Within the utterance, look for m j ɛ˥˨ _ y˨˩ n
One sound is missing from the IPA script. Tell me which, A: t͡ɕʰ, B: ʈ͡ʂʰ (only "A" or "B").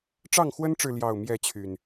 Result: A